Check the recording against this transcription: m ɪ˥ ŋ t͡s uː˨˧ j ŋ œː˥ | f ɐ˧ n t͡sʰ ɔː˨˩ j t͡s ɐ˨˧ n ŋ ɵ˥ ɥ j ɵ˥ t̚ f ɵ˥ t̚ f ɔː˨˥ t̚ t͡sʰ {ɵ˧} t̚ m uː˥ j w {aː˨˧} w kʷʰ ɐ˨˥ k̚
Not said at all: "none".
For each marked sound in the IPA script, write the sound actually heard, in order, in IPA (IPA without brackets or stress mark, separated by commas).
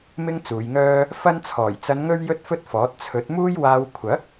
ɵ˨˥, aː˥